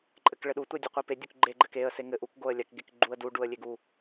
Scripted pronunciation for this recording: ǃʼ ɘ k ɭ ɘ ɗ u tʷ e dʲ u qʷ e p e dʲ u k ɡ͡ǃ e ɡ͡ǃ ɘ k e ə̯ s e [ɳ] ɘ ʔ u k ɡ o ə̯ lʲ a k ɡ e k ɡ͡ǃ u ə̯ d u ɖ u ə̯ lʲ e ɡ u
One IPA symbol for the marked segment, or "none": ŋ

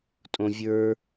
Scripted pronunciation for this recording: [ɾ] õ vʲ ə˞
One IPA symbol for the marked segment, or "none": tʼ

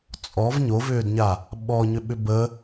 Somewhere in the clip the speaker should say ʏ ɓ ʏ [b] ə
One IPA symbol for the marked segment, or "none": b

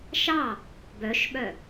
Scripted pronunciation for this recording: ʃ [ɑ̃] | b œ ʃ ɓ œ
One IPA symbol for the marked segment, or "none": ɑ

